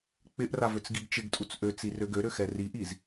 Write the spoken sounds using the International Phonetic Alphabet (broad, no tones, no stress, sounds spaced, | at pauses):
k͡p ɪ ʔ r a v ø t͡s ɡ i ɡ t͡ʃ ɪ ɡ tʼ u t͡s ʔ ø t͡s i r ø ɡ ø ɾ ø x ɛ r i ʔ i z